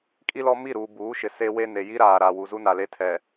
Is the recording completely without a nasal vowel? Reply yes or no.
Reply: yes